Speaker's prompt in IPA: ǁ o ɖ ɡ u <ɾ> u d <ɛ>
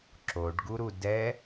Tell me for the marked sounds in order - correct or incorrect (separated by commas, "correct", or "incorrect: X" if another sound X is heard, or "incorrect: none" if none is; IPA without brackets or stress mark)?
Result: correct, correct